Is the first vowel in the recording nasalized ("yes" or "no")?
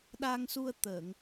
no